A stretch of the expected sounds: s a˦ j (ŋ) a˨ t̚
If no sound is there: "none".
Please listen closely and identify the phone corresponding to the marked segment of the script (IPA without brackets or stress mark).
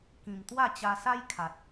kʰ